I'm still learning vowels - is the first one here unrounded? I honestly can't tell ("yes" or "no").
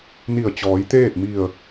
yes